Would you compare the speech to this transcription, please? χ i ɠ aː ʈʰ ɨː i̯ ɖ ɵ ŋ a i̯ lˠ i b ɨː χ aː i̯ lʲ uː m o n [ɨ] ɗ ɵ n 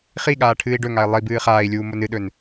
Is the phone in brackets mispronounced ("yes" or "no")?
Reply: no